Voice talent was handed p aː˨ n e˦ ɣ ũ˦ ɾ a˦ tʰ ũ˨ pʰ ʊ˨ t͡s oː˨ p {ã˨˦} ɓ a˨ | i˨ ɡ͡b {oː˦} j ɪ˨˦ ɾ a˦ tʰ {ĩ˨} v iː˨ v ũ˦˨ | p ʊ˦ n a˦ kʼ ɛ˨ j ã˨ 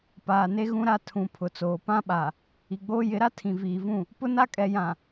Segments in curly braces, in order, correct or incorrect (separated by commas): incorrect, correct, correct